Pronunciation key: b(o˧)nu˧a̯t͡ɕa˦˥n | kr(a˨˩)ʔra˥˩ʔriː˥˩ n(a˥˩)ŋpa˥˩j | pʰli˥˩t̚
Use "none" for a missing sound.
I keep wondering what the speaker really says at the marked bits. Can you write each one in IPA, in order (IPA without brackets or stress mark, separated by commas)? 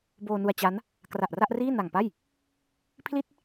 oː˧, a˨˩, a˨˩